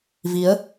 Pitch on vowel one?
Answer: rising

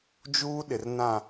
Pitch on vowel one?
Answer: high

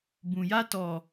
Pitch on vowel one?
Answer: low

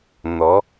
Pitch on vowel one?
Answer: rising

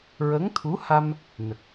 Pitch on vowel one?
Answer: rising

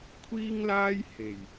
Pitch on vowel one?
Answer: high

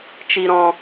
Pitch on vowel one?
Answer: low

